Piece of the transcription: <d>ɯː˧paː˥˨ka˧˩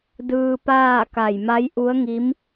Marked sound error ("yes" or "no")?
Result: no